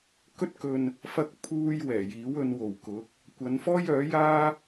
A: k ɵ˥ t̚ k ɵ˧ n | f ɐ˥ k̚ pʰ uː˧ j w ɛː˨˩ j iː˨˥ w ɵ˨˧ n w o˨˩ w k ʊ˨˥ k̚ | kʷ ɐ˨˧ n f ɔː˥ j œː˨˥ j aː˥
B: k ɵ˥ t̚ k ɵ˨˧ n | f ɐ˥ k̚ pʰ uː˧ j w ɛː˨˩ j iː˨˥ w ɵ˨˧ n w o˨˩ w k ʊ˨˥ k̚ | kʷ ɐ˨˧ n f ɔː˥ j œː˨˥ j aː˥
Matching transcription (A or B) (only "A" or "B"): A